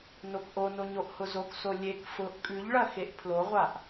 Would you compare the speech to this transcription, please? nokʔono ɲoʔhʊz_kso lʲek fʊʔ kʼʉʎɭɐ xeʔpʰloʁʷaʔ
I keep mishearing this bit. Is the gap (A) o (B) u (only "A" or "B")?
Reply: A